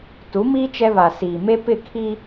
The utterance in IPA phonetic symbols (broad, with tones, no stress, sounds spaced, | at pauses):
t u˨˦ m iː˦ t͡ʃ ɛ˦ β a˨ s iː˨ m e˦ p ɪ˦˨ kʰ i˦